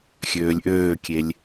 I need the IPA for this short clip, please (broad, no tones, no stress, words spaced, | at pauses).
xʲøːlʲʔøːkʲelʲ